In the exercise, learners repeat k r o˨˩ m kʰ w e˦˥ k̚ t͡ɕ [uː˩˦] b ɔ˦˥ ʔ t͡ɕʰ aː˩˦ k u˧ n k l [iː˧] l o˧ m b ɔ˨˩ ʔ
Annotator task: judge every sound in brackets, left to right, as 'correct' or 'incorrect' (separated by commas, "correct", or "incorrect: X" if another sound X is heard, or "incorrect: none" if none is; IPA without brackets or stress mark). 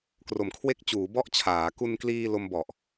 correct, correct